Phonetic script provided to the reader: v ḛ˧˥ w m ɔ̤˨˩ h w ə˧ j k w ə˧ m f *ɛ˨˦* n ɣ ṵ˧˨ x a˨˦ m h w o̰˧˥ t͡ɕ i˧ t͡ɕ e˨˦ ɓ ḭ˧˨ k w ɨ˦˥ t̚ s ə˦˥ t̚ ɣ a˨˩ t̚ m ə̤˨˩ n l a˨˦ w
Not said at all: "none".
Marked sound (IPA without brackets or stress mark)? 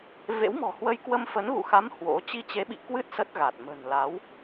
ə˨˦